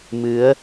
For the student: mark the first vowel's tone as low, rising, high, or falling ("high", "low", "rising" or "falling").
rising